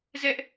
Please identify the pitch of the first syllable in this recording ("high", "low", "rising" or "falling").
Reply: high